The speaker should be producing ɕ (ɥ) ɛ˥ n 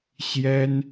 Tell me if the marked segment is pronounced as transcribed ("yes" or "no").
no